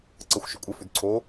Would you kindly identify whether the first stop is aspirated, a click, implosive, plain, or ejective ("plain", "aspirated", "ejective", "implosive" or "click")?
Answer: click